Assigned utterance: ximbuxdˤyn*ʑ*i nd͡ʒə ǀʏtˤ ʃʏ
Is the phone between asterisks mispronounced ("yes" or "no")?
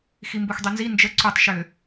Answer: yes